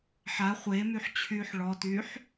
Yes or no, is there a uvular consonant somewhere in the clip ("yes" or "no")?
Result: yes